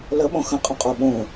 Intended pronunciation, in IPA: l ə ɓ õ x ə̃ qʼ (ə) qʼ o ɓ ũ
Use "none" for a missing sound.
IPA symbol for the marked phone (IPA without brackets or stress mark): ə̃